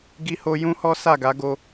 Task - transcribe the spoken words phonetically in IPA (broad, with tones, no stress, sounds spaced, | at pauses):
ɡ i˧ h o˧ j ũ˦ h ɔ˦ s a˦˨ ɡ a˨˦ ɡ o˧